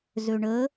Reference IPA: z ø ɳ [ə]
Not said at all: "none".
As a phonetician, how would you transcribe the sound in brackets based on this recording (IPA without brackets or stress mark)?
ə